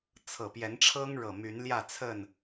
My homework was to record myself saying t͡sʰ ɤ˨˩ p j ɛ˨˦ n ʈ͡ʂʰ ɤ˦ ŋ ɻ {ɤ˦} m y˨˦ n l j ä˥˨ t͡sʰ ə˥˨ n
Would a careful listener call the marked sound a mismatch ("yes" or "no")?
yes